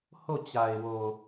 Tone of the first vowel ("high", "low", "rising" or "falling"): falling